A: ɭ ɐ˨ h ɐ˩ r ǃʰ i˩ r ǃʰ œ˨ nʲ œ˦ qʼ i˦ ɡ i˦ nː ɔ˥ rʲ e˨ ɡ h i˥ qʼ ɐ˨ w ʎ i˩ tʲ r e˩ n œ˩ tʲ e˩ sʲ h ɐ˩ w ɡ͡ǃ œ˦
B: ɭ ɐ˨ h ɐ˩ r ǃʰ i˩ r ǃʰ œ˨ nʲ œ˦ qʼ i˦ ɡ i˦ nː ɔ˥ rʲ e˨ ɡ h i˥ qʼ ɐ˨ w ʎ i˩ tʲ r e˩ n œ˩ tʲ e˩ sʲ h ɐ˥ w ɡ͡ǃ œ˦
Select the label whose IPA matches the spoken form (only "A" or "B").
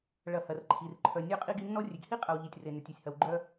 A